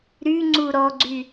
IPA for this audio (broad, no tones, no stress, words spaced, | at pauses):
ɾyŋ͡ǀu ɾɔɡ͡ǀy